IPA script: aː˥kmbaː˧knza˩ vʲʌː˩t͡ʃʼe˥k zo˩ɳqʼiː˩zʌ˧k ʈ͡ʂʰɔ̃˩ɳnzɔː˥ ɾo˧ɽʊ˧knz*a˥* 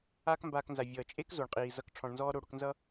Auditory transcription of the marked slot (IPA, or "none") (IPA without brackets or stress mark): ʌ˥